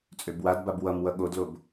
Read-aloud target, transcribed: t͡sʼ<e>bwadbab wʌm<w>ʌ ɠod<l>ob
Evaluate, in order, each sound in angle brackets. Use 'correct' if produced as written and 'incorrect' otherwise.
incorrect: ø, correct, correct

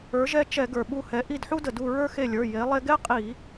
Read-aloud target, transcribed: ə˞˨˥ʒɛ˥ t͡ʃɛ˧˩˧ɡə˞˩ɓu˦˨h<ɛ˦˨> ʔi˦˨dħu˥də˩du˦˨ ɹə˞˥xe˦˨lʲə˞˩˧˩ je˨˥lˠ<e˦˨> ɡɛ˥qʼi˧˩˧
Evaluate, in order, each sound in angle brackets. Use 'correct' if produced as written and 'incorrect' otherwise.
incorrect: ɛ˨˥, incorrect: e˥

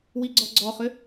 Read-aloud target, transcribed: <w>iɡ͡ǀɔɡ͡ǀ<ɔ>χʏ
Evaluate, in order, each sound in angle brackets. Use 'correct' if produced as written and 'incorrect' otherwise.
correct, correct

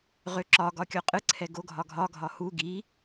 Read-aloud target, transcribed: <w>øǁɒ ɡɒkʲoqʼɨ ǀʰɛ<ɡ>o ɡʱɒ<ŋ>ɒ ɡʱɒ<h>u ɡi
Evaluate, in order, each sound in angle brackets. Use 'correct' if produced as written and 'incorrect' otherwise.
incorrect: ʁ, correct, incorrect: ɡʱ, correct

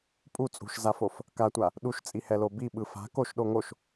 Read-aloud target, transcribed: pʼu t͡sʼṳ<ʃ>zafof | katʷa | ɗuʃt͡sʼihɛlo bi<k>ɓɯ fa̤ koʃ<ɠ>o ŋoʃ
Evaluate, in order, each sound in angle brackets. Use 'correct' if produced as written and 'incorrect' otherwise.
correct, incorrect: none, incorrect: ɗ

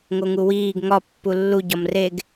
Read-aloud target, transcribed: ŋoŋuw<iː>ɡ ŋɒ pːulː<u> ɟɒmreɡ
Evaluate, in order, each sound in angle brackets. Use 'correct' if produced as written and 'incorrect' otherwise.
correct, correct

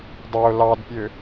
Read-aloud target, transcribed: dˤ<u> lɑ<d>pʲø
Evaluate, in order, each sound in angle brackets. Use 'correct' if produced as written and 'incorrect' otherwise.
incorrect: o, correct

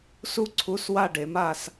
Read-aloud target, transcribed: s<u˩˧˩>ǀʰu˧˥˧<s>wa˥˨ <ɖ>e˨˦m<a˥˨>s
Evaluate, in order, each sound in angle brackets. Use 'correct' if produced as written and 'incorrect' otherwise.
incorrect: u˥, correct, correct, correct

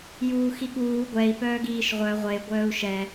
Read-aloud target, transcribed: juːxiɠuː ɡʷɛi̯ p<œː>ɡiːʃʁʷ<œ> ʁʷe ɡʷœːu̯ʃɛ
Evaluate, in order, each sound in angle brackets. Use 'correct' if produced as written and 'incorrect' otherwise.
correct, correct

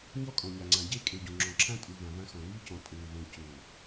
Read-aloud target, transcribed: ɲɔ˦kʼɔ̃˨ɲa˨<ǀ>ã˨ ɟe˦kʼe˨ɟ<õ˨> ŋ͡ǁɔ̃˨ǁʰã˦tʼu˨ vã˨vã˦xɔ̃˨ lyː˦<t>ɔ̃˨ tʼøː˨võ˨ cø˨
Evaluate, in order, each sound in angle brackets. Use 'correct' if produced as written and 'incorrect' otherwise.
incorrect: ŋ͡ǀ, correct, incorrect: c

